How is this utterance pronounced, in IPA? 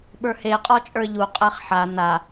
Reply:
ɓ ə˞ h e qʼ ɔ t͡ʃʼ ə˞ ʎ u qʼ ɛ χ ħ a n a

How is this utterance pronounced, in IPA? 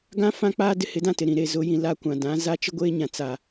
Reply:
ɡ ã˦ f ã˦ k͡p aː˦ d ɪ˦ h ɪ˨˦ d ã˦ t ɪ˨ ɾ ĩ˨ ɾ e˦˨ z ʊ˨˦ j ĩ˨ l a˦ kʷ ã˨ d ã˨˦ z a˦ t͡ʃ ɪ˦ ɡʷ eː˦ ɲ ã˨ t͡s a˨

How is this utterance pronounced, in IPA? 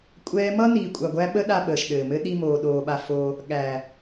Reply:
kʷʼ ɛː˦ m ʌ˦ n iː˧ kʷʼ a˧ ɡʷ æ˦ ɓ ə˦ ɗ a˧ ɓ əː˨ ʃ ɗ ɘː˨ m ɘ˦ ɗ i˧ m oː˨ ɗ oː˨ ɓ a˧ f oː˧ | ɠ æ˨

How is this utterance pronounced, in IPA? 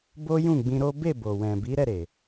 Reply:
b o˦ j ũ˦˨ ɡ͡b ĩ˧ ɾ o˦ b e˦˨ b o˨ w ɛ̃˨ b i˨˦ ɾ ɛ˦˨ ɾ e˨

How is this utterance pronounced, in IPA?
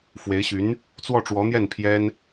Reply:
f w e˧˥ ɪ̯ ɕ y˧˥ n | t͡s w ɔ˥˩ ʈ͡ʂ w ɔ˧˥ n̪ j ɛ˥˩ n pʰ j ɛ˥ n

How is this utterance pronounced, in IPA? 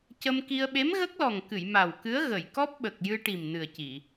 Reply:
c ə˧ m k i˧ ə̯ ɓ e˧˥ m ɣ ə˦˥ k̚ l ɔ˨˩ ŋ k ɨ˨˩˨ j m a˨˩ w k ɨ˧˥ ə̯ ɣ ə˨˩˨ j k ɔ˦˥ p̚ ɓ ə˨˩ k̚ j ɨ˧ ʈ i˨˩ m n ɨ˨˩ ə̯ c i˨˩˨

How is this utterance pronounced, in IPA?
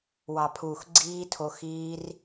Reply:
w ɑ˨ pʰ uː˨ x ɡ͡ǀ iː˦ tʰ o˧ x iː˦ r

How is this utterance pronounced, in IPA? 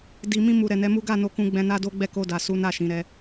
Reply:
d i˨ m ĩ˧ m u˨ ɾ ɛ˨ n ɛ˨˦ m u˦ ɡ a˦˨ n o˧ k ũ˧ ɡ͡b ɛ̃˧ n a˦ d o˦ ɡ͡b ɛ˦˨ k o˧ d a˨ s u˨˦ n a˦˨ ʃ ĩ˨˦ ɾ ɛ˦

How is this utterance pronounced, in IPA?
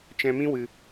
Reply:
t͡ʃ ɛ̃˧ m ĩ˦ w ɨ˧

